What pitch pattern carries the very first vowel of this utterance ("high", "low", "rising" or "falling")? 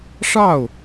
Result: falling